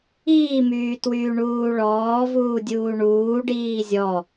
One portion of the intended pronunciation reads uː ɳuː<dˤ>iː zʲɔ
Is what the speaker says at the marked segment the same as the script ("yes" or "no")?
no